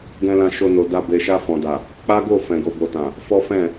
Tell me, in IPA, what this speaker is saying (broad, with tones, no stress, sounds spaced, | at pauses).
ɡ ɛ̃˧ l ã˧ ʃ o˧ n o˨ d a˧ b e˨ ʃ a˧ f ɔ̃˨ d a˨ | k͡p a˦ ɡ o˦˨ f ɛ̃˨ ɡ o˨ b o˨ t ã˨ | f ɔ˦ f ɛ̃˦˨